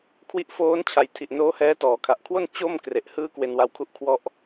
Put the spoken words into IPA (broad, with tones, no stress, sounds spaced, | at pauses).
kʰ w i˦˥ ʔ f oː˦˥ n t͡ɕʰ a˨˩ j tʰ i˨˩ ʔ n oː˦˥ h ɛː˦˥ t ɔː˩˦ kʰ a˨˩ ʔ kʰ w o˥˩ n t͡ɕ o˥˩ m k r e˨˩ ʔ h ɯː˦˥ k w e˧ n w a˧ w kʰ u˥˩ ʔ kʰ w ɔ˥˩ ʔ